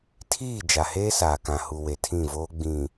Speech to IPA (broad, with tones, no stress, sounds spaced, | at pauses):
tʰ iː˦˨ d͡ʒ a˨ h eː˦ s aː˨ k ã˨ h u˨ w e˨ tʰ ĩ˦˨ v oː˦ ɡ͡b ĩ˨